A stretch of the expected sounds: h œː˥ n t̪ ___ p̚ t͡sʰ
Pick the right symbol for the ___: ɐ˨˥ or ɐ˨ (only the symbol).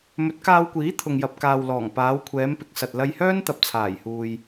ɐ˨